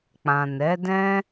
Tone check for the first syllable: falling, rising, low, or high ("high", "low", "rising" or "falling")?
low